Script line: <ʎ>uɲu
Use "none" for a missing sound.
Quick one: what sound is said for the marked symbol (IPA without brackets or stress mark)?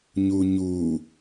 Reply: ɲ